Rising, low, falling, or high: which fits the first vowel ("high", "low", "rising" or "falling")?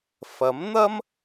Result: rising